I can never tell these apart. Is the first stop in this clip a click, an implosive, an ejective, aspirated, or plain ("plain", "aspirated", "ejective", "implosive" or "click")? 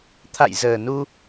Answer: aspirated